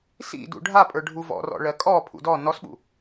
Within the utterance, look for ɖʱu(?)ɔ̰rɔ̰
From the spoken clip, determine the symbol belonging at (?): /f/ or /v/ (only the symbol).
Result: v